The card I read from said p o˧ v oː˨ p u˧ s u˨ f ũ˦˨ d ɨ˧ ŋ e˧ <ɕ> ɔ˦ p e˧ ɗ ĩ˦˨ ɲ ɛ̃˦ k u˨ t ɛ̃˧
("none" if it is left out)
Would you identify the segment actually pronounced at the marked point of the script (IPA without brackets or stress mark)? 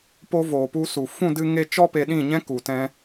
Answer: t͡ʃ